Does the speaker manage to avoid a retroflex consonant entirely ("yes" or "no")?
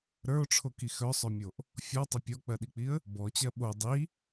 no